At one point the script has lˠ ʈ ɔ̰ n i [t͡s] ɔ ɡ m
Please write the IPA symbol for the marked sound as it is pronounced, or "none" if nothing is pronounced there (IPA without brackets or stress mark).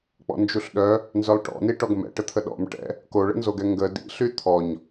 ʈ